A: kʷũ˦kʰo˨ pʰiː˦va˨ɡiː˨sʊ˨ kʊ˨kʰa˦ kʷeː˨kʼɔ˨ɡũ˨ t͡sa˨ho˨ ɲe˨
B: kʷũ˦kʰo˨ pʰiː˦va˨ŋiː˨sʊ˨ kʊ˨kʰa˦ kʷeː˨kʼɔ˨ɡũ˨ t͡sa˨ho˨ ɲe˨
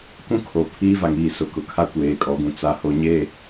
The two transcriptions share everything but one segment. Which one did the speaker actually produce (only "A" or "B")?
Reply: B